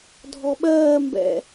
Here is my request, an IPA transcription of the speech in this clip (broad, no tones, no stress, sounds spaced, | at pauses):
dʱ ɔ ɓ ɜː m b ɛ̰